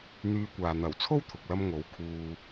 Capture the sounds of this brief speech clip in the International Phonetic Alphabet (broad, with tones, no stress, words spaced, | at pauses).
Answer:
n̪yː˧kʷaː˨ n̪ɐ˨˩wt͡sʰo˥w t̪ʰʊ˨k̚lɐ˥m ŋo˨˥w kʰuː˧